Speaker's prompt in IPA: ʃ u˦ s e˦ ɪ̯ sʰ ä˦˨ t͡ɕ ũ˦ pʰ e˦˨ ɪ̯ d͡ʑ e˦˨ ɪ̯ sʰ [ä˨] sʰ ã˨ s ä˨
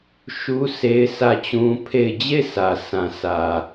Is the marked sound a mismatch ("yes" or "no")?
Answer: no